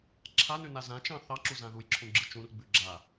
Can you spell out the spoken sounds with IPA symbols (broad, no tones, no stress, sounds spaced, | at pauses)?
ǁʰ a n ʉ n a z ã t͡ʃ ɑ̃ θ ɑ ǁ u z ã ð u j ǁʰ ũ ɡ͡ǁ ɯ t͡ʃ ũ r ɡ͡b ʉ ɡ͡ǁ a